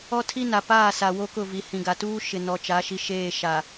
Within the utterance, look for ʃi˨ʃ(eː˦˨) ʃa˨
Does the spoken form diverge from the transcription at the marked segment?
no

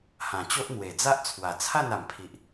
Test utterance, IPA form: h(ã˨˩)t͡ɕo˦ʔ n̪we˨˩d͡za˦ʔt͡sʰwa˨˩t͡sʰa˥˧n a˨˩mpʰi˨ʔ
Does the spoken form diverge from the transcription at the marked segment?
no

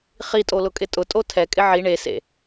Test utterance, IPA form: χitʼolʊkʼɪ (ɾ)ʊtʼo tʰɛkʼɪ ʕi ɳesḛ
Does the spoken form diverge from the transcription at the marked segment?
yes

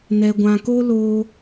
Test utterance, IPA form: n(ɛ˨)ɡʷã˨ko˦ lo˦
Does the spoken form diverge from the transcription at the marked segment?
no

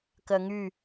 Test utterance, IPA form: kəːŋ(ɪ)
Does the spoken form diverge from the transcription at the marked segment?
yes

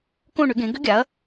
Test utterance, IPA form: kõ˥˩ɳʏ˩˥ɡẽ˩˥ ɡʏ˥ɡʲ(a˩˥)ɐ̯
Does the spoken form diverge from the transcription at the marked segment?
no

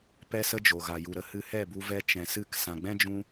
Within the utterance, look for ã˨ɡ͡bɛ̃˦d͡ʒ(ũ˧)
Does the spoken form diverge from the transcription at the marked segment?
no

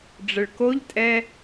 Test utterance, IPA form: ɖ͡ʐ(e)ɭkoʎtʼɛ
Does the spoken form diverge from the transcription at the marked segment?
yes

